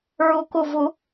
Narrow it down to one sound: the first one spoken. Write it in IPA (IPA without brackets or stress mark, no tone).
ɹ